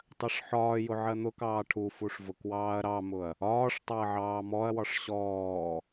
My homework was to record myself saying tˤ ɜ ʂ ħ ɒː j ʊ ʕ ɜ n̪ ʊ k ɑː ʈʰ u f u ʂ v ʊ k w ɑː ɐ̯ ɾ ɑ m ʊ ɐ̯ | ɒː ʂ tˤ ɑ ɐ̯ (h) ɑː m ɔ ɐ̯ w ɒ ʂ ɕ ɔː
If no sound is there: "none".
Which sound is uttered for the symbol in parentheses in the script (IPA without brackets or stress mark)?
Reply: ʕ